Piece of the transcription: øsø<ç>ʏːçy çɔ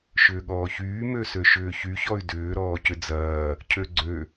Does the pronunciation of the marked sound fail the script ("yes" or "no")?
yes